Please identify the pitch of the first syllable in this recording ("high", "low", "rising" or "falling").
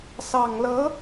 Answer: low